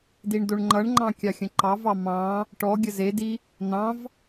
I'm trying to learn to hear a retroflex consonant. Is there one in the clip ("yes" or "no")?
yes